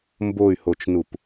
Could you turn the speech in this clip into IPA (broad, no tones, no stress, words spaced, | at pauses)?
mboy̯hot͡ʃnup